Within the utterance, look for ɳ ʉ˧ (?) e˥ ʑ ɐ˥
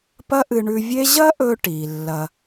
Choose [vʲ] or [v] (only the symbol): vʲ